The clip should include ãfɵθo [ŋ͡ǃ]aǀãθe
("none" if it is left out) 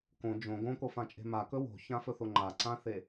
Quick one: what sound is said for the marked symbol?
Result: ŋ͡ǃ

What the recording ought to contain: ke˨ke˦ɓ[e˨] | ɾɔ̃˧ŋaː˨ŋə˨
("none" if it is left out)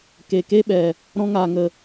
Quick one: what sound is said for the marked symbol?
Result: ɛ˨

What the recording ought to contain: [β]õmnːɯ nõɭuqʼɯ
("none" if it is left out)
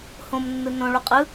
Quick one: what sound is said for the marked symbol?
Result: h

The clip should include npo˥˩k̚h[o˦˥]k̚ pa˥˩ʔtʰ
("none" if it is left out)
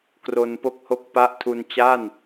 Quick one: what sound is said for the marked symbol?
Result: o˥˩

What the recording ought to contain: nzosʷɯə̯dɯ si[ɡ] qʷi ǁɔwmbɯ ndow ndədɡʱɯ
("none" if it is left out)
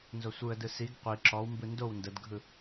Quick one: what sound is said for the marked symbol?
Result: ɡ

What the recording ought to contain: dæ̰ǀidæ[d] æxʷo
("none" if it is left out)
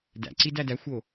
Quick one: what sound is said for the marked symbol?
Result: d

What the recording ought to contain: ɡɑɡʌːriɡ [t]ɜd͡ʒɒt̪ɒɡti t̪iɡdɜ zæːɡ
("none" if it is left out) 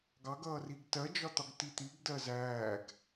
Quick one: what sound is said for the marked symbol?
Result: t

